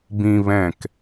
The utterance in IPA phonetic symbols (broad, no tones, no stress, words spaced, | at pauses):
bĩ βɛ̃k